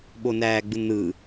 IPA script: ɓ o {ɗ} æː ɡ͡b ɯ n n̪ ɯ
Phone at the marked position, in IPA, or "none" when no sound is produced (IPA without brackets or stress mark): n